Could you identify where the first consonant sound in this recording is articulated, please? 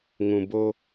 velar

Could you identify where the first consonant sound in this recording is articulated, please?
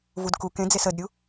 labial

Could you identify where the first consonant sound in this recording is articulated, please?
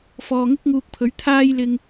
labial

